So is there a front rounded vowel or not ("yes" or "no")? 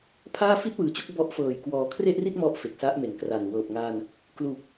no